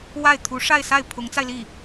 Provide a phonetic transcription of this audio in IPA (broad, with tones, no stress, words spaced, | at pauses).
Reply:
wa˥˩ɪ̯ t̪ʰu˧˥ʂa˥˧ɪ̯sa˥˩ɪ̯ pʰʊ˧˥ŋt͡sa˧ɪ̯li˥˩